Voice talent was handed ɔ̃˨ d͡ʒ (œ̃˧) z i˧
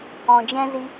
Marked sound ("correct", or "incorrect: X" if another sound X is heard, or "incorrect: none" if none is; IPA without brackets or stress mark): incorrect: ɛ̃˧